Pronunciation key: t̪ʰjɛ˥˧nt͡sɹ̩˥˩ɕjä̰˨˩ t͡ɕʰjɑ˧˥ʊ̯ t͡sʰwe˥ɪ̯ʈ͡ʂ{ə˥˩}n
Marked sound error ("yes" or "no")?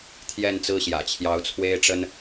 yes